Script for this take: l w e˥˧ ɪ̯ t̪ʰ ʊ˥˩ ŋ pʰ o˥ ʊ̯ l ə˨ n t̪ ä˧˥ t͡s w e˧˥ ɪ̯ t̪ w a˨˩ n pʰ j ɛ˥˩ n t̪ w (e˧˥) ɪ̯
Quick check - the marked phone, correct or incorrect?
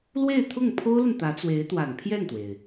incorrect